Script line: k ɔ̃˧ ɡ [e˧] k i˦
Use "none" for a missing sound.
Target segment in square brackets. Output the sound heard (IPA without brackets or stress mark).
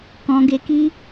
e˧